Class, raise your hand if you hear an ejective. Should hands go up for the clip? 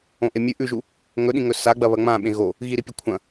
no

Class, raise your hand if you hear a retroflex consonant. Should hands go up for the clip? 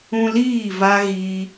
no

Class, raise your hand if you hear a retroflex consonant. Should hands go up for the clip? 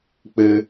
no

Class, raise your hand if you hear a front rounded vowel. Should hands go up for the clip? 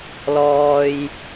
no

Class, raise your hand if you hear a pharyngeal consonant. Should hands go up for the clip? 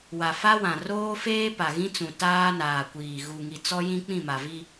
no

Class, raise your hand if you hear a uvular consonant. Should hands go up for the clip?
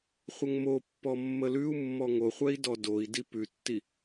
yes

